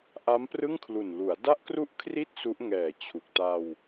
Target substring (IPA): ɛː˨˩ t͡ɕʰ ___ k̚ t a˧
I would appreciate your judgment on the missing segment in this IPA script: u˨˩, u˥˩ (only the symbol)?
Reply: u˨˩